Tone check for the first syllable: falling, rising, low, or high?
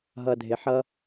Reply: low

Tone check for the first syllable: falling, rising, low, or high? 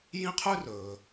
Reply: high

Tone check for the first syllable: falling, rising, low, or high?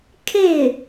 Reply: falling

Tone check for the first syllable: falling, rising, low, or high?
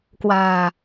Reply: low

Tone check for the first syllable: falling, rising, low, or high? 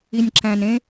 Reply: low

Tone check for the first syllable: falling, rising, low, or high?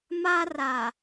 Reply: high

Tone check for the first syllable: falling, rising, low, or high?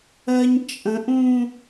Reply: high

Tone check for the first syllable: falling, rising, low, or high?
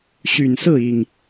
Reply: low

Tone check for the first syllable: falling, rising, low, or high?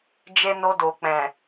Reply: high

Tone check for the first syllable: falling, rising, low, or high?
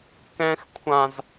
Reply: high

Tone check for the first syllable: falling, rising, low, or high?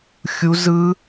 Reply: high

